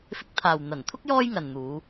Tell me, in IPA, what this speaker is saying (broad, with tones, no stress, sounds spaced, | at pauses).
f ɪ˧ k̚ t̪ʰ aː˨ w n̪ ɐ˨˩ n t̪ʰ ʊ˥ k̚ j ɔː˥ j ŋ ɐ˨ n n̪ uː˨˧